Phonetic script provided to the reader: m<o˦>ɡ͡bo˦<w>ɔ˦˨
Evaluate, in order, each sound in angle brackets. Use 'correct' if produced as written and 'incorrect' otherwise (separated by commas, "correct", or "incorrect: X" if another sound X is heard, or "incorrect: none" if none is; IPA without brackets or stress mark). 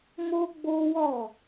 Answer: correct, correct